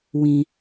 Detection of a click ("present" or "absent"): absent